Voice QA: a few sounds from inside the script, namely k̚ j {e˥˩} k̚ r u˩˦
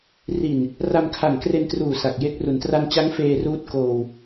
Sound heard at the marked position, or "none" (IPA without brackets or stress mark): e˦˥